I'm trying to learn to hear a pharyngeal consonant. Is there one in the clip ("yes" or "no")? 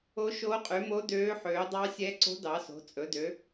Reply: yes